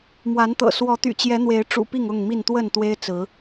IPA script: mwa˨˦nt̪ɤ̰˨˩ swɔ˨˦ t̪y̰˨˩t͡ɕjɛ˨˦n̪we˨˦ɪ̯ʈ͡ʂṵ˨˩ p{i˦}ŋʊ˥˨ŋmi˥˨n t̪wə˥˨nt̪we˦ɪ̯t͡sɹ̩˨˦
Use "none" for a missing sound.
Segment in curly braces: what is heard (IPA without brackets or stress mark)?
i˥˨